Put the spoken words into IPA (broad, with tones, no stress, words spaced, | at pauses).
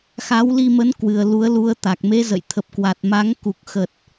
xa˨˦wli˧mə˨˦nkwɨ˨˩ə̯ lu˨˦ə̯lu˧ə̯t̪a˨˩k̚ me˨˦zə̰˧˨jt̪ʰə˨˩p̚kwa˨˩t̚ ma˨˦ŋku˨˩k̚xə˨˩t̚